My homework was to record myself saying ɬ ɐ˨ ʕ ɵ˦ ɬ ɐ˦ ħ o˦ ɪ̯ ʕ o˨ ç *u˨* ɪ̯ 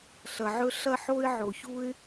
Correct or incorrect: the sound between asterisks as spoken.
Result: incorrect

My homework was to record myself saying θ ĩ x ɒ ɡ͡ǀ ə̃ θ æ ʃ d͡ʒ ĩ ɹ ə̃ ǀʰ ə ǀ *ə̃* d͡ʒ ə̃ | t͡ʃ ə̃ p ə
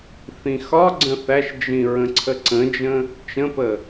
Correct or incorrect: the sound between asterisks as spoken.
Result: correct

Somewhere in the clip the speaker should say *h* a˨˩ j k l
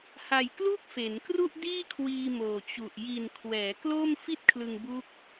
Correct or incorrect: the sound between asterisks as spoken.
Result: correct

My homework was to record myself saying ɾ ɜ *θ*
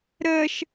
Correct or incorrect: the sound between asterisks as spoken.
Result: incorrect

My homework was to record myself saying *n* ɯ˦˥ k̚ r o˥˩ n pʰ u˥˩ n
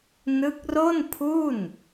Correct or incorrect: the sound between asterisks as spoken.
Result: correct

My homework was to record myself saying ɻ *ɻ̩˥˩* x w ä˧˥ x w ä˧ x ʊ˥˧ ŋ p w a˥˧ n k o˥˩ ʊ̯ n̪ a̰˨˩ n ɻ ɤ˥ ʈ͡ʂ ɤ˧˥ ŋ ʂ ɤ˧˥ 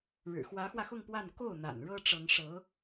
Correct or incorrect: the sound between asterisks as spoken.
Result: incorrect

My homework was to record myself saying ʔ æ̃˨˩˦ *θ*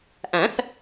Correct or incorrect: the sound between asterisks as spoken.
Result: correct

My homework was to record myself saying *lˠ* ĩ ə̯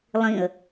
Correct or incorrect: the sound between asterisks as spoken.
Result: correct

